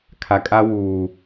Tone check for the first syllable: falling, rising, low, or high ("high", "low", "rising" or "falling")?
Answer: low